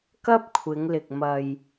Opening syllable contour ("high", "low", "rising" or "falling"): high